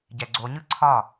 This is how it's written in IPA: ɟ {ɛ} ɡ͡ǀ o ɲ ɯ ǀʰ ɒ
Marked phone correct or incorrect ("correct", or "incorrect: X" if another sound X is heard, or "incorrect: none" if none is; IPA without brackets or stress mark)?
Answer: correct